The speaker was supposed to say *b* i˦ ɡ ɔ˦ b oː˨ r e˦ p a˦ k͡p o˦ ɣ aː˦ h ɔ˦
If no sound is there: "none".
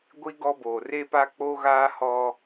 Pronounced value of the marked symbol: ɡʷ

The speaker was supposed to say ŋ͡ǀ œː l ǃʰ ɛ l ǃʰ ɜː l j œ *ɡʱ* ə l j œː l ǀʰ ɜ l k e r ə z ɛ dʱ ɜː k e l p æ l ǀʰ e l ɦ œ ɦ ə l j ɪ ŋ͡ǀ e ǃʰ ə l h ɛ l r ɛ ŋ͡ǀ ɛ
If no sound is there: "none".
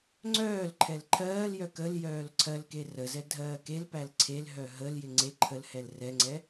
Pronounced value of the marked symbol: k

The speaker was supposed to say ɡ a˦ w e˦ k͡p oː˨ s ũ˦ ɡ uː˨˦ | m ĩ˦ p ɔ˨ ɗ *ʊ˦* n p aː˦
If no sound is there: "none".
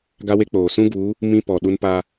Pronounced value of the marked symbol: u˦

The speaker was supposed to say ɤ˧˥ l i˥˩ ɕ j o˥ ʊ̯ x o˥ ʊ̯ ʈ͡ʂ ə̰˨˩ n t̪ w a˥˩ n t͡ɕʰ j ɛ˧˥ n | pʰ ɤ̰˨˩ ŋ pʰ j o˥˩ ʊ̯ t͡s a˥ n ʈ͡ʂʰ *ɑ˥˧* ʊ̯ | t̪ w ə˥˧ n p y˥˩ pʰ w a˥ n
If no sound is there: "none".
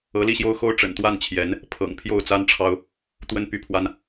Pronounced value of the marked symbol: ɑ˥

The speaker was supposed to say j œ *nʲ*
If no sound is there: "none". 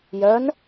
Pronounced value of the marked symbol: n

